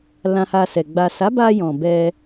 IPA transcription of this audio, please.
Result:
l ã˧ h a˧ s ɛ˨ ɡ͡b a˨ s a˨˦ b a˧ j ɔ̃˨ b ɛ˧

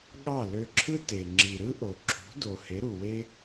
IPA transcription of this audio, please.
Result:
ɠ ɑ˦˨ l ø˧ ǁʰ ɯ˦ t e˨ ŋ͡ǁ i˨ ɾ ɯ˦ ʔ o˨ ǁʰ ṳ˨˦ d o˨ h e˨˦ ɾ u˨ w e˦

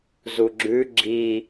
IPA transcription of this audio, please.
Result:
z u ɡ͡ǁ ʉ ɡ͡ǁ i

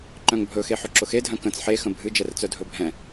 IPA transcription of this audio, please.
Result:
ǃ œ̃ ŋ bʱ ɵ x e ħ ɵ ǁ ʊ x e dʱ œ̃ k ə̃ t͡s ħ e x ə̃ bʱ ɨ d͡ʒ ɛ r t͡s œ dʱ ɵ bʱ ɛ̃

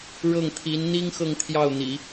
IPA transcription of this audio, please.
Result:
ɻ ɤ˥˩ ŋ t̪ʰ i˧˥ n n̪ i˥ ŋ x ɤ˥˧ ŋ t̪ʰ j ɑ˥˩ ʊ̯ n̪ ḭ˨˩˦

